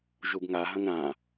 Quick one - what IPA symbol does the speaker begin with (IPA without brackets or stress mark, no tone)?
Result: ʒ